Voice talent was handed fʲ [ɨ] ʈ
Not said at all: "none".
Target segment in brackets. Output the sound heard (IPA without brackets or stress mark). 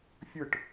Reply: ɨ